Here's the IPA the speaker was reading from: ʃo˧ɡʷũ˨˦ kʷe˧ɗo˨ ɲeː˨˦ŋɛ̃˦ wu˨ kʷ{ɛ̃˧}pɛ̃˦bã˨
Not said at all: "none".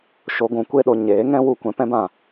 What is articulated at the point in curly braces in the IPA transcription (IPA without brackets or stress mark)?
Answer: ɛ̃˧